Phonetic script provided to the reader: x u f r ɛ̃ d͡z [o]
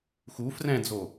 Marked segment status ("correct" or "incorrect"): correct